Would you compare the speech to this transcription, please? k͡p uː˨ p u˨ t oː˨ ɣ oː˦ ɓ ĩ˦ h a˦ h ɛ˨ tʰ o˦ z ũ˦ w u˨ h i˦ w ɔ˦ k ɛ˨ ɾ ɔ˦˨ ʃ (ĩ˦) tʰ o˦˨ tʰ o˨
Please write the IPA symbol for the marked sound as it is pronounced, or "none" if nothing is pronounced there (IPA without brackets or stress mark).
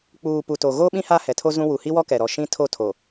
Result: ĩ˦